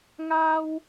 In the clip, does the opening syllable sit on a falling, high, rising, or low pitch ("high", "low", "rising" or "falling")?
high